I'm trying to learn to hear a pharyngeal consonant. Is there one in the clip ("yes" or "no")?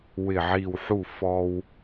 yes